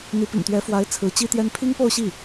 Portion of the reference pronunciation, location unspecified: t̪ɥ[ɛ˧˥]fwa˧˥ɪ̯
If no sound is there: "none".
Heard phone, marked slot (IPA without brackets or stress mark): ɛ˧˥